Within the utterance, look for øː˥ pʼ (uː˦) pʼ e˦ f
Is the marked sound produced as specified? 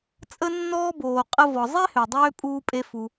yes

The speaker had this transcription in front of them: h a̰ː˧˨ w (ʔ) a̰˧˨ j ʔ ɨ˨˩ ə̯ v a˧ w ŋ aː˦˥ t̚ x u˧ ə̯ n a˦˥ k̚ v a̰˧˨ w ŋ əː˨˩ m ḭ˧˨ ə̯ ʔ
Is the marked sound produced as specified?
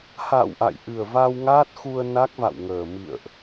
yes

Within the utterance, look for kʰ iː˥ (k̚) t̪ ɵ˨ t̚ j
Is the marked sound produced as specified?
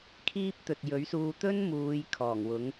no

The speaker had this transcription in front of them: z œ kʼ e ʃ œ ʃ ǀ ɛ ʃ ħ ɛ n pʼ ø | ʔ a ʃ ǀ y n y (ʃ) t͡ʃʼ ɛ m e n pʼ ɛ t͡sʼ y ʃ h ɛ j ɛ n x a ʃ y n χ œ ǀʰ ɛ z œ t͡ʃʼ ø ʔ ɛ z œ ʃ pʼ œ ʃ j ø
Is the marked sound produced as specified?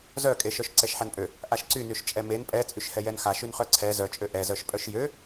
yes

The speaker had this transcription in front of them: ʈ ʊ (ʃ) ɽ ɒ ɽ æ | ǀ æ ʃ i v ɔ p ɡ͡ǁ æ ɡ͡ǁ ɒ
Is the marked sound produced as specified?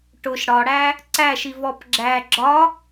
yes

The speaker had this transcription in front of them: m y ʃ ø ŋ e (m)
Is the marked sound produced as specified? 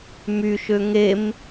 yes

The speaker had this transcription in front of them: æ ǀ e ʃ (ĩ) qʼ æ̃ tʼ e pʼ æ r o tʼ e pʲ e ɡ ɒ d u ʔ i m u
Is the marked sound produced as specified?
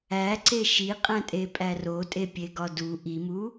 no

